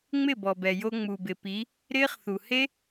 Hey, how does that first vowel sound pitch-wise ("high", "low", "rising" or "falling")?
falling